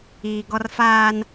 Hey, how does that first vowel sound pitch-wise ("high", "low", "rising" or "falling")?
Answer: low